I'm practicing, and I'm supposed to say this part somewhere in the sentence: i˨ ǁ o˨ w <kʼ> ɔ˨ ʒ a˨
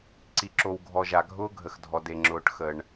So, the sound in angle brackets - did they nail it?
no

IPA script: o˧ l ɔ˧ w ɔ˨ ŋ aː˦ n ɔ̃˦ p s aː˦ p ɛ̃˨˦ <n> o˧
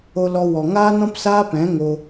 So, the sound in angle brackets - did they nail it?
no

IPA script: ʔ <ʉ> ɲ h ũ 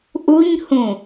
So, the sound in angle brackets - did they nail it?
no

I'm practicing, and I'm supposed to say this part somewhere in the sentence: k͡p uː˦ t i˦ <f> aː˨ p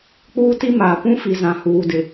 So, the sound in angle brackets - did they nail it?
no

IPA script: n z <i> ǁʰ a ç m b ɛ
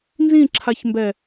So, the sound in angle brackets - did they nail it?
no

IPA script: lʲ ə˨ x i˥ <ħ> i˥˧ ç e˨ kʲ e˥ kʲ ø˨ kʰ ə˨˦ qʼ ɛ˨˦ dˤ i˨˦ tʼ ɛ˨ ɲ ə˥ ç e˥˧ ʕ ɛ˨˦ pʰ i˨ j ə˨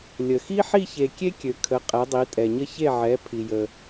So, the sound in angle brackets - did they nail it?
yes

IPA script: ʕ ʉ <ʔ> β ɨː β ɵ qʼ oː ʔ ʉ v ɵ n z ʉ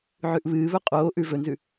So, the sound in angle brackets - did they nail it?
yes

